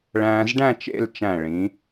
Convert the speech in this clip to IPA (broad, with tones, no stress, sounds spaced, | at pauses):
ɭ æ̃ː˧ z ɖ æ̃˥˧ t͡ʃ ḛ˥˧ l t͡ʃ æ̃˧˩ ɭ ĩ˩˧